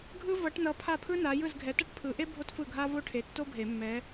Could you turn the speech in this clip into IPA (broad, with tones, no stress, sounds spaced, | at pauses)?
ɡʱ ɯ˥ v ʌ˨˦ ʈ n ʌ˨˦ pʰ a˥˩ pʰ ɯ˥ n a˨˦ j ɯ˥˩ z ɡʱ ɛ˨˦ t ʌ˥ ʈ pʰ ɯ˨˦ ʔ e˥ bʱ o˥ t f ɯ˥˩ ɡʱ a˥ v o˥ ʈʰ e˨˦ tː o˥ bʱ e˨˩˦ mː ɛ˨˦